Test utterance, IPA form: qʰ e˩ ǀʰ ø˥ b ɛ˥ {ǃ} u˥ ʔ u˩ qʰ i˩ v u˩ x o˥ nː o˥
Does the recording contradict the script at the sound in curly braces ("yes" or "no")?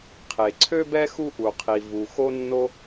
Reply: yes